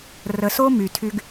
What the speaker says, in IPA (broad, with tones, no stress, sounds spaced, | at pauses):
r ə˨ s o˦ m y˨ tʰ y˦ ɡ